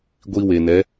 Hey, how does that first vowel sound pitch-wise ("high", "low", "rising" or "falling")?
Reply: high